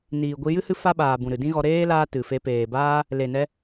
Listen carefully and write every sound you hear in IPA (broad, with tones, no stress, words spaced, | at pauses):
niː˨ɡʷi˧ jɨ˦ hɨ˦ fa˦ɓaː˨ bũ˨ɾɨ˨ dĩ˦ɣɔ˧ ɾeː˦ laː˦tɨ˨fe˧ peː˨baː˦ | le˨nɛ˧